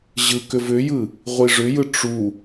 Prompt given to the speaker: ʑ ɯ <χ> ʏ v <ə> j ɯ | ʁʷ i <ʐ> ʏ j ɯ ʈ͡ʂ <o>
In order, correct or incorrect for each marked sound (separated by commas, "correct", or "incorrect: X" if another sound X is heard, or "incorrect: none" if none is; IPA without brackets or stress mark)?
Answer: incorrect: k, incorrect: ʏ, correct, incorrect: u